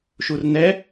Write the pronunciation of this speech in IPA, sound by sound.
ʃ u r n ɛ

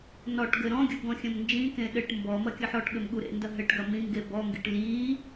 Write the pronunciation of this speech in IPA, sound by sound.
n ɔ ʈ ɡ ɘ ɾ ɔ̃ ɡʲ u ɡ ɔ̃ xʲ ɐ̃ m n d͡ʒ ĩ k ẽ ɗ ɘ ʈ m b ɔ m ɐ kʲ ɐ ħ ɔ ʈ ɠ ɘ m ɠ u ɾ ḛ n d ɐ ɦ ɘ ʈ ɡ ɐ m ĩ ŋ ɡ e b ɔ ŋ ɡ ḭ ʈ l i

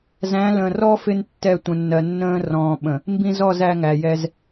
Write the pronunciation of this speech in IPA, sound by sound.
z æ̃˨˦ l ə̃ː˨ r ɔ˦ f ɪ˦ n tː ɛ˦˨ tʷ ə̃˨ nː ɜ˨ nː ə̃ː˦ r ɔ̃ː˨ ɓ ə̃˨ | m b ĩ˦ z ɔ˦˨ z æ˦ ŋ æ˨ j ɛ˦ z

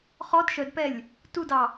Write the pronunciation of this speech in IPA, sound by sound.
χ ɔ d ʃ œ d p ɛ lʲ | t u d ɑ

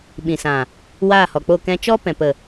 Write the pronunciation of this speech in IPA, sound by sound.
ɓ ĩ˨ s ã˨ | w aː˦˨ h ɔ˨ k͡p o˦˨ k ɛ̃˧ t͡ʃ ɔ˦ p ɛ̃˨ p ə˨

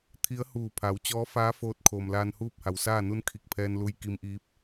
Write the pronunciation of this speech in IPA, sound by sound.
t̪ʰ i˧˥ ə̯ h uː˧˩ pʰ a˩˧ w t͡ɕ ɔː˧˥ f aː˧˥ f oː˧ t̚ kʰ oː˩ m l aː˧ n h uː˥˨ p̚ h a˩ w s aː˥˨ n u˧˥ n kʰ i˧˩ k̚ pʰ ɛː˧ n l u˧ j k i˧ m ʔ iː˧˥ p̚

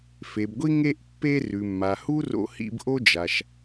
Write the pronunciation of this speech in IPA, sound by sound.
f e˩ b ɡʷ i˧ ŋ e˧ ʔ pː e˧ r ʉ˩ mː a˩ h u˥ r o̰˧ h ḭ˧ b ʔ o˥ d͡ʒ a˩ ʃ

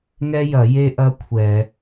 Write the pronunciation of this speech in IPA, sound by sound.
ŋ ɛ˥ j ɐ˧˩˧ j e˥ ʔ ɐ˥ kʷʰ ɛ˧˩˧

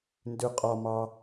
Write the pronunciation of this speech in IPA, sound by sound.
n d ʉ qʼ ɒ m ɑ

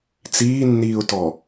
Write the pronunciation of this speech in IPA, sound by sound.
t͡s iː nː iː ʊ̯ t ɔ

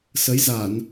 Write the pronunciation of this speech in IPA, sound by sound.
s ə˨˦ j z a˧˩˨ n

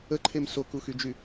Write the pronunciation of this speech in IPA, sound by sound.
ə ǃʰ e m s o k u x y d͡ʒ y

